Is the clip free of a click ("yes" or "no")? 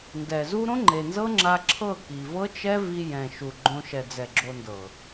no